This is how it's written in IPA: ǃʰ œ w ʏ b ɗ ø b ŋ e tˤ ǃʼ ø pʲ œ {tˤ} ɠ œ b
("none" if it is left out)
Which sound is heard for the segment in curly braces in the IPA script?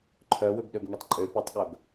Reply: tˤ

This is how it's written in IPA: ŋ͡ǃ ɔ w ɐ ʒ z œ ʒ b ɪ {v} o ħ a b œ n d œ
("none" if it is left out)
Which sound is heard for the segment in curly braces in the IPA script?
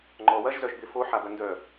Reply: f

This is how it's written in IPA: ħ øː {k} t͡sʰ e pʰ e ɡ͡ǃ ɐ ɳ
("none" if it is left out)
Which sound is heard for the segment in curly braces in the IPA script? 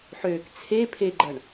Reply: k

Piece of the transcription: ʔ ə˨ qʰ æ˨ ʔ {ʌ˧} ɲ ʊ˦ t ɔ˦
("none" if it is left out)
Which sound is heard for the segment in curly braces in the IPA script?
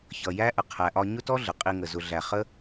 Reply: ɒ˧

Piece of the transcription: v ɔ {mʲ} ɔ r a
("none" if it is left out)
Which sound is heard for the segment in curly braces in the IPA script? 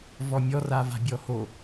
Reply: mʲ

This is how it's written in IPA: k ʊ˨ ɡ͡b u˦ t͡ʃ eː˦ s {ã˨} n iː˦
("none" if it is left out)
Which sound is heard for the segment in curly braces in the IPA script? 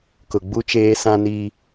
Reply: ã˦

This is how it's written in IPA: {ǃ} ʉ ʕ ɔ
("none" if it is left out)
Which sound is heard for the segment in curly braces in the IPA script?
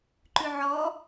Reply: ǃ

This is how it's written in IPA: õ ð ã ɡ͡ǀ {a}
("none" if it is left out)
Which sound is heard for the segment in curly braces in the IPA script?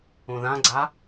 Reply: a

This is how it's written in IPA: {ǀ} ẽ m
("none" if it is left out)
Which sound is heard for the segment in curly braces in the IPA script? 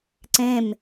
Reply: ǀ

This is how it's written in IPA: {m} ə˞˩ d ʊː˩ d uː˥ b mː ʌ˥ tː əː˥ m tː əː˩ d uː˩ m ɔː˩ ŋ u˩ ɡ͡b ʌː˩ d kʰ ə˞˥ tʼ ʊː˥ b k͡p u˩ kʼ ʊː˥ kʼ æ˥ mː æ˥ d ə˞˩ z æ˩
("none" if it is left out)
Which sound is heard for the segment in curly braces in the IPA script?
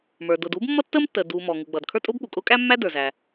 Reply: m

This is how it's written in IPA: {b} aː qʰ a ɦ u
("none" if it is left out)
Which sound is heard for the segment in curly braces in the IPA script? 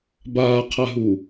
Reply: b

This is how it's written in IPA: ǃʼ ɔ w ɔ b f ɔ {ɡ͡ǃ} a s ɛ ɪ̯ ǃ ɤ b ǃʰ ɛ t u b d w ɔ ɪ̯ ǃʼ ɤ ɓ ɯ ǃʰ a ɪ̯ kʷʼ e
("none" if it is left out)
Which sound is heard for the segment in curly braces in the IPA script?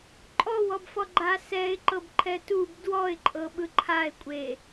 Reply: ɡ͡ǃ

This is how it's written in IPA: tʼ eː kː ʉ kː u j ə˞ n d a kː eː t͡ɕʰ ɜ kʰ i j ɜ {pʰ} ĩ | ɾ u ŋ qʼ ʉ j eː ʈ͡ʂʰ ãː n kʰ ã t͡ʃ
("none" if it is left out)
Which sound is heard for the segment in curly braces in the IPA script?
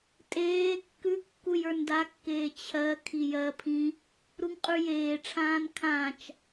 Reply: pʰ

